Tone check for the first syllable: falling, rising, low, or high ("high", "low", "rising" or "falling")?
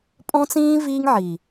high